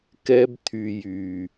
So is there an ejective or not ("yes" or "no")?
no